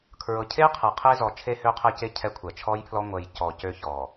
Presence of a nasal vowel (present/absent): absent